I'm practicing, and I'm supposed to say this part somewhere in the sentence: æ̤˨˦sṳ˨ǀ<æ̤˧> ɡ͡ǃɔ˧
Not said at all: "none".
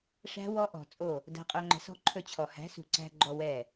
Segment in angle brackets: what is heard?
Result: æ̤˧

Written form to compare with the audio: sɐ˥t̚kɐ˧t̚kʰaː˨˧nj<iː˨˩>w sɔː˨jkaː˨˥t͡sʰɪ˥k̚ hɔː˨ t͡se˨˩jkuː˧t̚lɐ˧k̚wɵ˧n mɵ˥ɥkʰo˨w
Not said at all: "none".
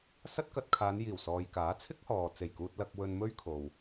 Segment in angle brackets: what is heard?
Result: iː˨˩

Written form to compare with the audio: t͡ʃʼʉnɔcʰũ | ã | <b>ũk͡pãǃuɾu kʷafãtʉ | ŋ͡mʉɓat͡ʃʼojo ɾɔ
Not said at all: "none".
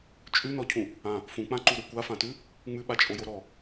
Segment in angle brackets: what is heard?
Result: f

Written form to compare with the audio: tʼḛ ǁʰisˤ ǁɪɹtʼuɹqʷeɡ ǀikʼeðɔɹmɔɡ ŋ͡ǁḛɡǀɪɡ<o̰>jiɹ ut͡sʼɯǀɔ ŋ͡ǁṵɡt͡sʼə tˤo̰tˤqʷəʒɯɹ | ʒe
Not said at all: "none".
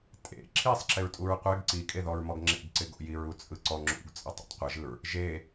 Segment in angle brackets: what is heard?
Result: o̰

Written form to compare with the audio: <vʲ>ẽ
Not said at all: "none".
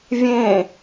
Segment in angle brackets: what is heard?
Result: vʲ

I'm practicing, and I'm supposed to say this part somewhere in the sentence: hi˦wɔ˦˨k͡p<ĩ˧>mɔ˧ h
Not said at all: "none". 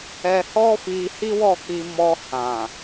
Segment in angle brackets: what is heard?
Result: i˧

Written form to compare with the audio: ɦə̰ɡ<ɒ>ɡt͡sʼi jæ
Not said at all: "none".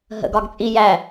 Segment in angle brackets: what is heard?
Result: ɒ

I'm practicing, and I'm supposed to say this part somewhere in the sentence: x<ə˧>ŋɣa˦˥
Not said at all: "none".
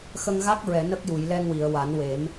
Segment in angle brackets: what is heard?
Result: ə˧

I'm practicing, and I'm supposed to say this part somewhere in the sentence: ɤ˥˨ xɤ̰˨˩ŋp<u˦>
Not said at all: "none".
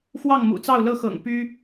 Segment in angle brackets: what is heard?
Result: y˦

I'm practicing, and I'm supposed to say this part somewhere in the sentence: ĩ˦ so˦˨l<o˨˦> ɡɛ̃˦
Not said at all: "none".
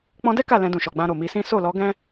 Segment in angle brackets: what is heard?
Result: ɔ˨˦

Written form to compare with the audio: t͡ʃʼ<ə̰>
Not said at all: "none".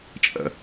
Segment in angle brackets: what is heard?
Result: ə̰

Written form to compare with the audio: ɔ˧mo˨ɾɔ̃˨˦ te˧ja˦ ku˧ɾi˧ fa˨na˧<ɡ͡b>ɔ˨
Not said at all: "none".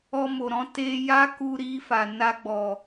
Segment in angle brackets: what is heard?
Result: ɡ͡b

